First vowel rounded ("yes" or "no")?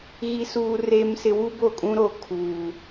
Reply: no